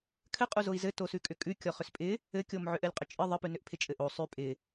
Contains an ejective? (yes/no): yes